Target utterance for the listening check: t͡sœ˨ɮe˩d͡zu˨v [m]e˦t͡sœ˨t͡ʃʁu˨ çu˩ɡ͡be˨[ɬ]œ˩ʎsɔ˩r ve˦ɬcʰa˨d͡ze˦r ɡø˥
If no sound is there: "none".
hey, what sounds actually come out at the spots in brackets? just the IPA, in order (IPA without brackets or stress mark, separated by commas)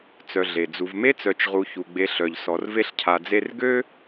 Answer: m, ɬ